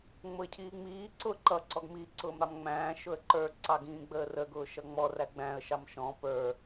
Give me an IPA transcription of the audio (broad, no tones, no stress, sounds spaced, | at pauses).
ŋ͡m ʊ ɪ̯ cʰ iː ŋ͡m iː ǀ ʊ ǃ ʌ ǀ ɔ ɡ m i ǀ ʊː m ɾ ɑ m ŋ͡m æ̃ː ʃ ʊ ə̯ ǃ ə˞ ǀ ɑ ɡ ĩː ɡ͡b əː r ə ɡ ʊː ʃ ʌ ŋ͡m ɔ r æ ɡ͡b æ̃ ə̯ ʃ ɑ m ʃ ɔ̃ p ə˞